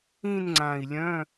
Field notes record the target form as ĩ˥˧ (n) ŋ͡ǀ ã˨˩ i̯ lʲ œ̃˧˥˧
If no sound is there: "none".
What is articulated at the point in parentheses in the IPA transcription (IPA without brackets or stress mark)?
n